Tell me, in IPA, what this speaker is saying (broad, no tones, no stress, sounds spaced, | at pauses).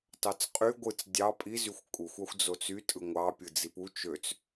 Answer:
t ɑ t͡s qʼ y ɡʷ ɯ t͡s dʲ ɑ pʼ i z y xʷ kʼ u xʷ ɑ xʷ d͡z o t͡s y tʼ ɯ ŋʷ ɑ pʲ ɯ d͡z i p u t͡ʃ ø t͡s